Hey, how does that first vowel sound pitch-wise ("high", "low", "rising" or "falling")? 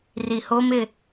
low